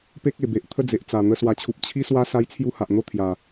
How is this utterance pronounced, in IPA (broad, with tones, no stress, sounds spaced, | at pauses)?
p e˦ k̚ e˨˩ b e˨ ʔ t̪ʰ ə˥˧ d͡z e˨ ʔ t͡s a˨˩ n̪ ə˧ s w a˨˩ t͡ɕʰ u˨ p̚ t͡ɕʰ i˦ s w a˦ s a˦ j t͡sʰ j u˦ h a˨ ʔ n̪ o˦ t̪ʰ j a˨˩